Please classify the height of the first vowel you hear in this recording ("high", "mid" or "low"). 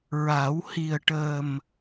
low